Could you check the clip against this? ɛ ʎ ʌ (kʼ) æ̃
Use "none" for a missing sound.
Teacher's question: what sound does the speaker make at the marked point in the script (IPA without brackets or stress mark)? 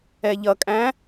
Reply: kʼ